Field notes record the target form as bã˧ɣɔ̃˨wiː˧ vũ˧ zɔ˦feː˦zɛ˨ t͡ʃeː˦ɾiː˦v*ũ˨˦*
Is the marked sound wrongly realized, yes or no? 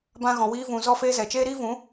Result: no